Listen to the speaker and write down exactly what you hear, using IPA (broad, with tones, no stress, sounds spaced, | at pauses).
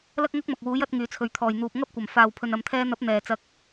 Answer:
l ɐ˥ k̚ ŋ ɐ˥ k̚ m ɐ˨ k̚ w uː˨˥ j ɐ˨˥ t̚ ŋ yː˨˧ t͡sʰ ɵ˨˧ ɥ t̪ʰ ɔː˨ j n̪ uː˨ p̚ ŋ ɐ˥ p̚ kʷ ɐ˨˩ m f aː˨ w pʰ ɵ˨ n ɐ˨ m t̪ʰ ɛː˧ n̪ ɐ˨˥ p̚ n̪ ɛː˨˩ t͡s ɐ˨˥ k̚